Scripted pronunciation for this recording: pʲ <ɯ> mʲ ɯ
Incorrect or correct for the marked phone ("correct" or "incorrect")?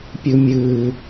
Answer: incorrect